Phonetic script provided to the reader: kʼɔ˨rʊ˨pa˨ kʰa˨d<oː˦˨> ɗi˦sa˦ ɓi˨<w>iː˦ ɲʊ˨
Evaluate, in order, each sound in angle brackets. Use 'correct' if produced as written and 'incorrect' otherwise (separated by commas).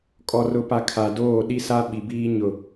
correct, incorrect